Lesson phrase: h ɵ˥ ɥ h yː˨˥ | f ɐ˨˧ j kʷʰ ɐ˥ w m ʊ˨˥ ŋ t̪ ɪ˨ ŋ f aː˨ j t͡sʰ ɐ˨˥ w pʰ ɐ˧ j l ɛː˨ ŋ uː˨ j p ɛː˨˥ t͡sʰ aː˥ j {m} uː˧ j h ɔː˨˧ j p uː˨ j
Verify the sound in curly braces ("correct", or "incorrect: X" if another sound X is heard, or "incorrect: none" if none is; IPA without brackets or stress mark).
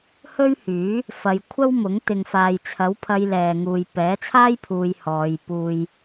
incorrect: pʰ